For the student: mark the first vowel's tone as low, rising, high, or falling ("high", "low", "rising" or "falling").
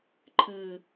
low